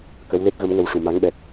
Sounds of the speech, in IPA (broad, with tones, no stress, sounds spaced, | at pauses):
k ə˧˥ w l e˦˥ t̚ ɣ ə˧˥ m ŋ ə˧ w ʂ u˨˩˨ m a˧˥ ŋ ɓ ɛ˨˩ t̚